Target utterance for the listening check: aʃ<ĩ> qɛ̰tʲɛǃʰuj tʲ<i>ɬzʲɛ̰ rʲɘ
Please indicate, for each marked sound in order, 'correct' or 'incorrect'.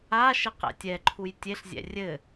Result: incorrect, incorrect

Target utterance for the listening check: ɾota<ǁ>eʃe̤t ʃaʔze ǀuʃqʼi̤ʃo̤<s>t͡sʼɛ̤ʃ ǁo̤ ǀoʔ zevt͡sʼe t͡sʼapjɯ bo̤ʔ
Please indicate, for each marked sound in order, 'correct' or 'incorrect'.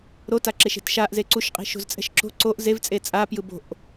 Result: correct, incorrect

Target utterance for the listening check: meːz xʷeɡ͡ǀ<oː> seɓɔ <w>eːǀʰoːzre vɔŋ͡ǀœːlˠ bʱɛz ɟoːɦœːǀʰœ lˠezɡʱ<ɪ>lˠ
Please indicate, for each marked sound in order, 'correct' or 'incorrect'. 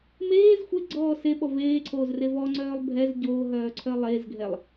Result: incorrect, incorrect, incorrect

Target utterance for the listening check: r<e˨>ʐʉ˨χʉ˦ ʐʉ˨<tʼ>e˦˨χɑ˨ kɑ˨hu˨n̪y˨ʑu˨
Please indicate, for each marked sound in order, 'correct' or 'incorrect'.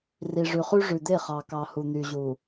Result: incorrect, incorrect

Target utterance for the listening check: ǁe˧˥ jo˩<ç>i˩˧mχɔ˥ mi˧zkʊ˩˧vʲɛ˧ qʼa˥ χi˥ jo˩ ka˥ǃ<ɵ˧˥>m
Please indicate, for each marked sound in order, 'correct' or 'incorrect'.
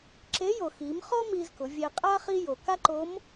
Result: incorrect, incorrect

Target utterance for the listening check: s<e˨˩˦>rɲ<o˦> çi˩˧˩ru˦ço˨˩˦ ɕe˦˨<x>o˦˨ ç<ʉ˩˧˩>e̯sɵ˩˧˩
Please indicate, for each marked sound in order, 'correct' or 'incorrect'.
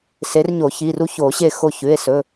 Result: incorrect, incorrect, correct, correct

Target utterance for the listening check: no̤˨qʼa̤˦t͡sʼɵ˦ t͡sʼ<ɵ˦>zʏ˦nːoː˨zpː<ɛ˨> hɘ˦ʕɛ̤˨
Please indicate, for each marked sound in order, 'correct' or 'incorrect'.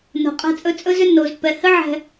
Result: correct, correct

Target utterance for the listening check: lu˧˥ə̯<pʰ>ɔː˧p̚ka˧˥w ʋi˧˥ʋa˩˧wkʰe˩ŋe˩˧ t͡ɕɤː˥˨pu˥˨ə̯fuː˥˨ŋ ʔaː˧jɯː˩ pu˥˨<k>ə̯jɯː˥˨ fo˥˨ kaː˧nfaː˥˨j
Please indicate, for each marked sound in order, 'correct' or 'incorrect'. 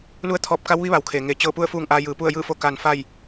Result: incorrect, incorrect

